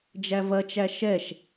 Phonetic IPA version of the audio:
d͡ʒævɐt͡ʃæ ʃɛʃ

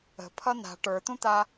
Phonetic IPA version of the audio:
ə̤pʰʌ n̪a̤ ʈə˞t̪ũt̪a

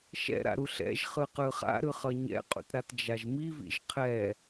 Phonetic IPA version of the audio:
ʃɛ̰ɾa̰ɾu ɬɛ̰ʒχɯ qɯχa̰ɾɯ χʌɲɛ̰qʼṵtɾat d͡ʒaʒmivḭʒ qʰɛ

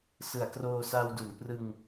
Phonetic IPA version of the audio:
sɯ˩˦a̯kroː˧sa˧wdu˩˦n prɯ˧ŋ

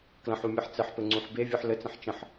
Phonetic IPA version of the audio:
klə̃ħumʲɯħ t͡sɘħpɘŋ͡ǀũħ bevʲɯħ lɘt͡sə̃ħ t͡ʃə̃ħ

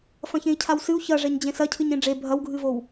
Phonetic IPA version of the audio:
fɐ̃çẽi̯cʰawsɨu̯ çɐʐɛɲ d͡ʑẽsɐ cʰɨɲẽɖ͡ʐe bʱɐwɡʱɨvow

